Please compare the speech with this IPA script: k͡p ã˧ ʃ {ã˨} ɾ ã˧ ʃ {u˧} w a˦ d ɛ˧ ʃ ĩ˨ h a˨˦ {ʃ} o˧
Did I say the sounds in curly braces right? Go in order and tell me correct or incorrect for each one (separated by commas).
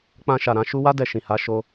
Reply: incorrect, correct, correct